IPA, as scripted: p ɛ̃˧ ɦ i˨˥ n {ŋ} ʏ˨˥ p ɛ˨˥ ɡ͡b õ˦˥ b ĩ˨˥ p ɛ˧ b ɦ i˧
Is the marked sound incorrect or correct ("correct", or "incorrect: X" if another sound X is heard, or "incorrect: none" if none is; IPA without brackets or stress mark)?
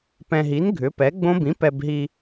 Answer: incorrect: ɡʱ